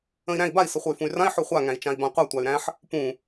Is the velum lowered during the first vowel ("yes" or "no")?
yes